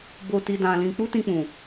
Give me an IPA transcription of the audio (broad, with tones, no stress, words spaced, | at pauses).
bo˧ti˧ dã˧lĩ˧ k͡pu˦tĩ˧k͡pũ˨